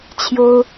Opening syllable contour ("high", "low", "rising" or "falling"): high